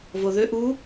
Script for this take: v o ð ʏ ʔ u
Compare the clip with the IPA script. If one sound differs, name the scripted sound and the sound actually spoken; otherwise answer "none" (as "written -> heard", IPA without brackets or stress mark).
none